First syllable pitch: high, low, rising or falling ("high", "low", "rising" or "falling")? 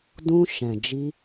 high